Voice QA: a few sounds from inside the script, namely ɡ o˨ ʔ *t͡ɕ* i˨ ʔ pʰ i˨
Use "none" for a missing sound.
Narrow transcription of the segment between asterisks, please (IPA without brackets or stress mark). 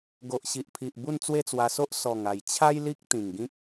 ɕ